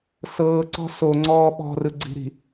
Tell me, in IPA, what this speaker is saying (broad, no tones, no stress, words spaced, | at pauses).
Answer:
sɤːǀɔ̤ soŋ͡ǀɔː ɓɔ̤rɯɡ͡ǀi̤ɾi̤